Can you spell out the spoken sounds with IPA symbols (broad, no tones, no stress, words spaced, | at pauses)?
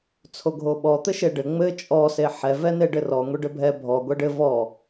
t͡sʰoɡʱoɓɔ t̪ɘʃeɖɘ ŋ͡mɘ t͡ʃʼɔ seħɛ vɛneɖɘrɔ ŋʷeɖɘbʱɛ bʱɔ ɡʷɛɖɘ vɔ